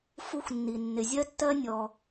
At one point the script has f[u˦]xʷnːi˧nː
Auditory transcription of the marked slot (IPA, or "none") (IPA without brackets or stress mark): u˦